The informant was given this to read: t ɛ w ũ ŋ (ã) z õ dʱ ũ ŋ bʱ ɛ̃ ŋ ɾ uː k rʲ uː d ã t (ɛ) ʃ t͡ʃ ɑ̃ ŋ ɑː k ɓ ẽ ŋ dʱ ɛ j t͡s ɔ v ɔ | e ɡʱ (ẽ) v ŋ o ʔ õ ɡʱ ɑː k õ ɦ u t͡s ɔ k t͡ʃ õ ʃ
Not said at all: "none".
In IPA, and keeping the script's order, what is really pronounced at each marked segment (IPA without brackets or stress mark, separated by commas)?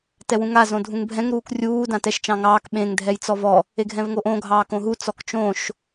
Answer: a, ɛ, ɛ̃